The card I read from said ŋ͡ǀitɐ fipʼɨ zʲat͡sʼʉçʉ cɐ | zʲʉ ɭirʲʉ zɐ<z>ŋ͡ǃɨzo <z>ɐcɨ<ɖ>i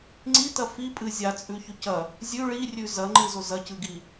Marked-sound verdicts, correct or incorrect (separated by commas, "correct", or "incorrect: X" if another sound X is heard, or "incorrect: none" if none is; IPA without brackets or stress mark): incorrect: none, correct, incorrect: ɡ